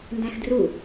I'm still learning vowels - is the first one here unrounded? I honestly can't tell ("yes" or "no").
yes